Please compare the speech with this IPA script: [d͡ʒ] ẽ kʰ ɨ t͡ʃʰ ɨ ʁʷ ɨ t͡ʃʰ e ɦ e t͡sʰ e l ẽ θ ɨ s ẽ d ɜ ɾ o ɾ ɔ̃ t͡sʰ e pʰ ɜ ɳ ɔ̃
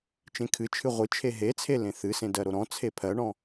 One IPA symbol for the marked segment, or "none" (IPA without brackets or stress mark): t͡ʃ